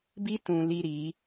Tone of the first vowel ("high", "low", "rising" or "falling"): high